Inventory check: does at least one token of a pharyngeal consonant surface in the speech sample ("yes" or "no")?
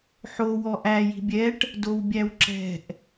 yes